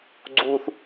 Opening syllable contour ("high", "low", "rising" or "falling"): low